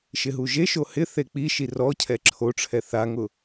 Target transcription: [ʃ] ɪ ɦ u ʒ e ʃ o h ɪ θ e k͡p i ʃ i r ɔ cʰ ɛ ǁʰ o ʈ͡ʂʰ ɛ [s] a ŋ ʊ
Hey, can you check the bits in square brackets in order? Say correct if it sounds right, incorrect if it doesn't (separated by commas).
correct, incorrect